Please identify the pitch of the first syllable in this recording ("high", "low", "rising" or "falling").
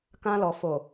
high